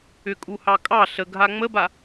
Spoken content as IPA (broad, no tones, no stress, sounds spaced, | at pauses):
ʏ kʼ u h ɑ kʼ ɑ ɬ ə ɡʱ a ŋ͡m ə b a